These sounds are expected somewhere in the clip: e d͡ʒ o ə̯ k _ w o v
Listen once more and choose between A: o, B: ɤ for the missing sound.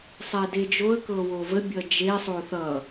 B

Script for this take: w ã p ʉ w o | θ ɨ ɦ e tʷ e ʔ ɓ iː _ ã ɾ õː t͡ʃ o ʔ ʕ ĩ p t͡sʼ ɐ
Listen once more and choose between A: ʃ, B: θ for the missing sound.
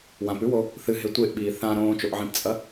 B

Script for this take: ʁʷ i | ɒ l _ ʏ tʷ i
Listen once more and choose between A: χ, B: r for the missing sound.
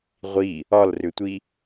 B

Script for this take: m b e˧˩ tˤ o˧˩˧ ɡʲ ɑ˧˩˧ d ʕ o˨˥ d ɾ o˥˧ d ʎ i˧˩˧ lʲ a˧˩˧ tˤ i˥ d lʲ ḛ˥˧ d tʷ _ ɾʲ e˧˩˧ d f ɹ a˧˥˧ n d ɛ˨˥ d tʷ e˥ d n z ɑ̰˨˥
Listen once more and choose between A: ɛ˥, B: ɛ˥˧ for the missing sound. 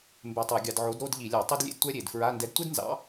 A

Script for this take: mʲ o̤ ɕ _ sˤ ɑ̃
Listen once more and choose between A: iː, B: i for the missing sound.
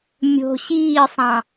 A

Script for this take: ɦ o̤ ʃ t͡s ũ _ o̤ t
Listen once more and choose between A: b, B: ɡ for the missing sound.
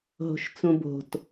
A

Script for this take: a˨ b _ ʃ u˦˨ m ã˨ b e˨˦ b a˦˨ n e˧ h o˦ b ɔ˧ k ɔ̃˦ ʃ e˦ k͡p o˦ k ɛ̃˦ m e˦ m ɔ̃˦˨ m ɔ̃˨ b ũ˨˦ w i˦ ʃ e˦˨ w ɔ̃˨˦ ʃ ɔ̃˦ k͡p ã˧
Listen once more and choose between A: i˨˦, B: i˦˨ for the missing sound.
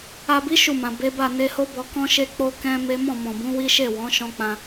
A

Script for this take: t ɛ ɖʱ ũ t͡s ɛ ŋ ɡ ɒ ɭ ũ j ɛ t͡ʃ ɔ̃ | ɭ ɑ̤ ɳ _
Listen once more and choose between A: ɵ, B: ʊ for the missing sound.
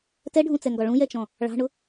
B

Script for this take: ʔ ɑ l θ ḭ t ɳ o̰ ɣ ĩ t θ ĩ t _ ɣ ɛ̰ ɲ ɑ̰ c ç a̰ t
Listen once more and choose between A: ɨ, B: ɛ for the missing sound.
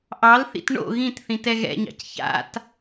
B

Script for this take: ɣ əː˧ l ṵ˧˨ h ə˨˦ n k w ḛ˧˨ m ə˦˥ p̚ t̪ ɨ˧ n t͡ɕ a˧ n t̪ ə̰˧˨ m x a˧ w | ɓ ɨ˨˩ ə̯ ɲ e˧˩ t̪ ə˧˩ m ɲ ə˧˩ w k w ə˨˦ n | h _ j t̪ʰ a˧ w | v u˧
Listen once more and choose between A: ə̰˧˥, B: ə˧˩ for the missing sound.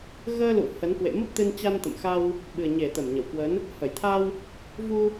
B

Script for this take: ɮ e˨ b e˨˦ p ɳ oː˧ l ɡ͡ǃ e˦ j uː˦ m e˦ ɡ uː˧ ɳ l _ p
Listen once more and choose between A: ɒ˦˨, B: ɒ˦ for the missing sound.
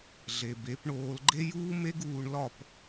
A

